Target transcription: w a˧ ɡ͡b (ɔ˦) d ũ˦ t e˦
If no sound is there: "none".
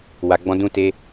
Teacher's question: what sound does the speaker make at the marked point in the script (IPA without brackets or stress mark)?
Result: ɔ̃˦